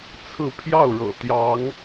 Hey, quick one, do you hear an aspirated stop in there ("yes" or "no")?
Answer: yes